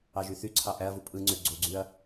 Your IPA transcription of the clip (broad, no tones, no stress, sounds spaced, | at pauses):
ɑ ʒ y θ y ǀʰ ɑ ʔ æ ɐ̯ v u pʼ ɯ ŋ͡ǀ ø ɡ͡ǀ o ɡ͡ǀ y ɐ̯